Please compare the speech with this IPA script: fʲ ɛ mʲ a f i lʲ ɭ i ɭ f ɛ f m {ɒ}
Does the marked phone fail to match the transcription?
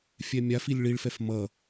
yes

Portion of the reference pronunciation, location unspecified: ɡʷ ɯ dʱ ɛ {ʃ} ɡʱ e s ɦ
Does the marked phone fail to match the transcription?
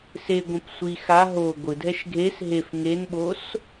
no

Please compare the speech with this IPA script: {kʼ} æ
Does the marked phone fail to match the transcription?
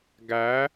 yes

